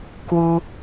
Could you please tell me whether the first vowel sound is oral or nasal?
oral